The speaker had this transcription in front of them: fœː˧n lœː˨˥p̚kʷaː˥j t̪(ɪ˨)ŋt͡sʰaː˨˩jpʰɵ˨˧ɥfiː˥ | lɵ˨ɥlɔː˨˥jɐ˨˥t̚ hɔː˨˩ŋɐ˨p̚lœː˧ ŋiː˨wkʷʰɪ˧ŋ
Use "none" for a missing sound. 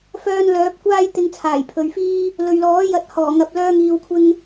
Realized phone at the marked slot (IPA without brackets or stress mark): ɪ˧